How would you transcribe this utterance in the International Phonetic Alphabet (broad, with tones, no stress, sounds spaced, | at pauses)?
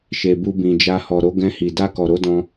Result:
ʃ e˨ b u˧ b ĩ˨ d͡ʒ a˧ h ɔ˨ ɾ o˨˦ ɡ ɛ̃˧ h i˨ d a˧ k ɔ˨ ɾ o˧ d ɔ̃˧